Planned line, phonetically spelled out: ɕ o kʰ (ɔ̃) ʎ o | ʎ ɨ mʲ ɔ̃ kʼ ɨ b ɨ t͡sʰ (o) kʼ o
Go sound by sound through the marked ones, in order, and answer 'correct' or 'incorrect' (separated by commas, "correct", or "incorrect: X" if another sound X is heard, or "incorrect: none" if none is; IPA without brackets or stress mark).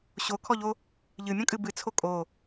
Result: incorrect: ɔ, correct